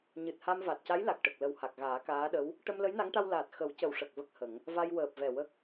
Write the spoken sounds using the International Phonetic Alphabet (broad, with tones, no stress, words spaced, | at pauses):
ɲɨ˨˩t̚ha˧m va˨˩t̚ca˧˥jla˨˩k̚ʈə˨˩k̚ lə˨˩w ha˨˩k̚ɣaː˨˩˦ kaː˧˥ɗə˧˥w | ʈə˧mlə˧˥jna˧˥ŋʈa˧w laː˨˩t̚ xə˨˩˦wcə˨˩w ʂə˨˩k̚ və˦˥k̚hə˨˩˦ŋ | va˧jwəː˨˩p̚vɛ˨˩ wə˦˥k̚